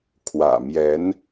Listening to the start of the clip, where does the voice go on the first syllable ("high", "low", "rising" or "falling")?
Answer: low